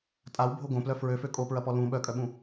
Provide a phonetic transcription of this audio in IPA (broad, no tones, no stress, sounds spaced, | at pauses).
tʼ a w bʱ o ɡ õ p l œ f ɹ ø f ø kʼ o p ɹ ɐ p ɔ l ũ ɓ œ kʼ œ ɓ ũ